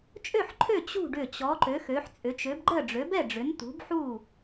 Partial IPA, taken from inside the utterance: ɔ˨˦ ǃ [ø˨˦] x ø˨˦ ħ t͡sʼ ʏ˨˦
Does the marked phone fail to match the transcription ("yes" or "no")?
no